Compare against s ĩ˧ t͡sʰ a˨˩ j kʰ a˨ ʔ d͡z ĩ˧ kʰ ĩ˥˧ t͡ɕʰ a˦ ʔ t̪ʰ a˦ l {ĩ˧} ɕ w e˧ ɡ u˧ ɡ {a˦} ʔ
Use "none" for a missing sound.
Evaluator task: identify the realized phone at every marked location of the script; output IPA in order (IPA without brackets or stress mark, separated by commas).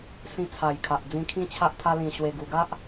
ĩ˧, a˦